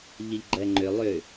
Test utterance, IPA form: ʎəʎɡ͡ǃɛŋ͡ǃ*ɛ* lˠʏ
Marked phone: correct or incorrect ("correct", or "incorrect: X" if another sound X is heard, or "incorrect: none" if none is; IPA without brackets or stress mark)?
incorrect: ʏ